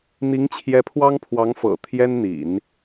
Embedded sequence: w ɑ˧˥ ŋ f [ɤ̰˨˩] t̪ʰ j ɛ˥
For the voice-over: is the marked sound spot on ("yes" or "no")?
yes